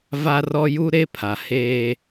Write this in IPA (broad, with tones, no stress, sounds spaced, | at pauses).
v a˦ r ɔ˦ j u˦ ɾ e˦ pʰ a˨ h eː˦